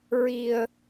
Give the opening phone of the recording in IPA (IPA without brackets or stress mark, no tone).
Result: ɹ